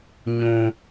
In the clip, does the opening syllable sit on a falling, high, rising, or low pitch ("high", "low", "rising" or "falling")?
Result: high